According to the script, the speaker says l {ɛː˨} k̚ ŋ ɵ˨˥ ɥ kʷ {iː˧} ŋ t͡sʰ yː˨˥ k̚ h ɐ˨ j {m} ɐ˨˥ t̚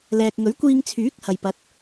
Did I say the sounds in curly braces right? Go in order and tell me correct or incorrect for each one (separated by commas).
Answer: correct, correct, incorrect